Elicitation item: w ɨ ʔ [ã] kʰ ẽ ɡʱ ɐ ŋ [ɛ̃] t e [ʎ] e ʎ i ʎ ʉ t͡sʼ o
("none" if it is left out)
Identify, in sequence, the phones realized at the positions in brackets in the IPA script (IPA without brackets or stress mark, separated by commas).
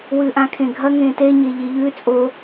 ã, ẽ, ɲ